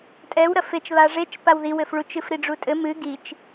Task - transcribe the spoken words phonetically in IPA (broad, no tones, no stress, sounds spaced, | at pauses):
tʼ ɛ w ɾ ɐ f e t͡ʃ β a ʐ e t͡ʃ p a w ð i w ɘ f ɭ u t͡ʃ ɨ f ɾ i ɖ͡ʐ u tʼ ɘ m ɨ ɡ i t͡ʃ